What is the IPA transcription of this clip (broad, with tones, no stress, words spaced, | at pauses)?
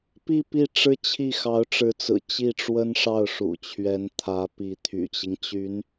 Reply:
pi˥˧ pi˥˩ʈ͡ʂɻ̩˥t͡ɕʰi˥˩ xɑ˧˥ʊ̯ʈ͡ʂɻ̩˧˥t͡sɹ̩˨˩ t͡ɕi˥˩ʈ͡ʂwə˥n ʂɑ˥˩ʊ̯ʂṵ˨˩t͡ɕʰɥɛ˧˥nt̪ʰä˧˥ pi˧˥t̪ʰy̰˨˩t͡ɕi˦ŋ t͡ɕy˧˥n